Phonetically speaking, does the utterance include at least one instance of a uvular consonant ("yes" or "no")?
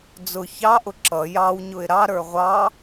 yes